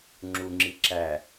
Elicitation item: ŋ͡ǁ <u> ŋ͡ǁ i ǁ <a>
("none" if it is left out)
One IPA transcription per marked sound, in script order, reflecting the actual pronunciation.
u, æ

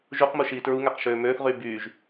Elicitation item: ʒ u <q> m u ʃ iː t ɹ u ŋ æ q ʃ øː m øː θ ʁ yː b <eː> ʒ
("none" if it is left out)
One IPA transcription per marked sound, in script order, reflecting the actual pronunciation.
q, yː

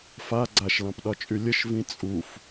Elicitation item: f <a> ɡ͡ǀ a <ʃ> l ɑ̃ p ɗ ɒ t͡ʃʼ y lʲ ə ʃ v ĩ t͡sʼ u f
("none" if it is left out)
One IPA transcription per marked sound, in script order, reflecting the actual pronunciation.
a, ʃ

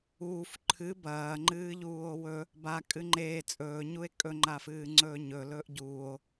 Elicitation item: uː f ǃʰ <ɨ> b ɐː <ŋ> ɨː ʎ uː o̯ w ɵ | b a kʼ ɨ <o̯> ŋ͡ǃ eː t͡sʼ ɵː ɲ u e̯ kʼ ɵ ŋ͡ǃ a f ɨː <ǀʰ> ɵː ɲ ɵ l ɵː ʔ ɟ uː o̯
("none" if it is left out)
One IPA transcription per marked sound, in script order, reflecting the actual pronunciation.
ɨ, ŋ͡ǃ, none, ŋ͡ǀ

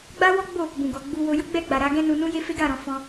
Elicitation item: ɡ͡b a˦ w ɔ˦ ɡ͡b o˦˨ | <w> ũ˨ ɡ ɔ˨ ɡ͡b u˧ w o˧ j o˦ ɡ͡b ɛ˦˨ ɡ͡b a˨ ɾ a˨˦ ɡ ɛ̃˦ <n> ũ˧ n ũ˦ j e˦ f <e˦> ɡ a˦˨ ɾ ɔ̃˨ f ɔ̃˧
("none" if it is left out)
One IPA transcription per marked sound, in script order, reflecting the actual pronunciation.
b, n, e˦

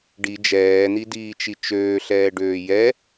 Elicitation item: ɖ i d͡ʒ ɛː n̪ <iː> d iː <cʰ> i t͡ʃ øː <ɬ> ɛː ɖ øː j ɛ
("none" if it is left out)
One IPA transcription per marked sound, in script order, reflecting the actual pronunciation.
i, t͡ʃ, ɬ

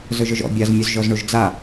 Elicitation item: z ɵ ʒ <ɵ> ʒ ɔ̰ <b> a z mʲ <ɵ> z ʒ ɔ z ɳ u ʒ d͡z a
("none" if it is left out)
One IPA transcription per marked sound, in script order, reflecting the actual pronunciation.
ɵ, bʲ, ɵ

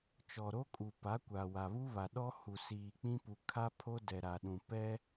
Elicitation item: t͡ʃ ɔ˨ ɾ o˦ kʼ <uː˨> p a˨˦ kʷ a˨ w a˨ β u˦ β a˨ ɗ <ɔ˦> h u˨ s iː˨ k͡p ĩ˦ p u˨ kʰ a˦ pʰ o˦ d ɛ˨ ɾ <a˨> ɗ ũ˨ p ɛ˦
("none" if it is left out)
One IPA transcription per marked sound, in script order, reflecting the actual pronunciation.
u˨, ɔ˦, a˨

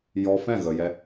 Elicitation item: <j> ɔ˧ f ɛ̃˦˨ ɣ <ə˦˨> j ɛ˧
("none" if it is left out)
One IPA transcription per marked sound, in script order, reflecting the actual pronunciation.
j, ə˨

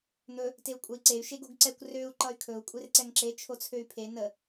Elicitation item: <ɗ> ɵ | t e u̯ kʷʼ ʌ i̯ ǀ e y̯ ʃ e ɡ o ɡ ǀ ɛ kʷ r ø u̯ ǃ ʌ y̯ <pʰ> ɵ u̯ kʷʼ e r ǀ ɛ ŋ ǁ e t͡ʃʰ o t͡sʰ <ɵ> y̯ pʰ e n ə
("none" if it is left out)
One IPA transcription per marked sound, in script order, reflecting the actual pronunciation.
n̪, kʰ, ø

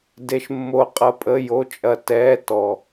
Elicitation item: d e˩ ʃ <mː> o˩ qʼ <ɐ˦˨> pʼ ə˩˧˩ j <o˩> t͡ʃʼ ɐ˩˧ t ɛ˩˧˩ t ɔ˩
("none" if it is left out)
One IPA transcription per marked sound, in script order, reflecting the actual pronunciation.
mː, ɐ˩˧, o˩˧˩

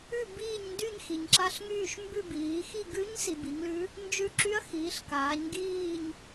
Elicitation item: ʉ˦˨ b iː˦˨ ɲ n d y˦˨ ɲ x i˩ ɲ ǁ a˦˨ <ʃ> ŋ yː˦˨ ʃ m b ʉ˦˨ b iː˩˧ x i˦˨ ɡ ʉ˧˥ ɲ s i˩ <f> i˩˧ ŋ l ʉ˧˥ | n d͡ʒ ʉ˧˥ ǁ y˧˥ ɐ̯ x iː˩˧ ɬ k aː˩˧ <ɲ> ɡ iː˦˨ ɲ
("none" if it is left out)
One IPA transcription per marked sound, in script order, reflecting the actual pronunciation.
ɬ, b, ɲ

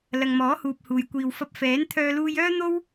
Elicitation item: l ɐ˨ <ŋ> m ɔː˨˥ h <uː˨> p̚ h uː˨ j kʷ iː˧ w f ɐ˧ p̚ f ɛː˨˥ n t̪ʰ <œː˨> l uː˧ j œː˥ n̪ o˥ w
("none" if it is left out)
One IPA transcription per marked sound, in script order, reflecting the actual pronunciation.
ŋ, uː˨, œː˧

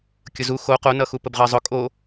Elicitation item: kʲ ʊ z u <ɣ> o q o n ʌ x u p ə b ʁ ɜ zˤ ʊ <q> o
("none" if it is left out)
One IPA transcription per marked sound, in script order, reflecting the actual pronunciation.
x, kʼ

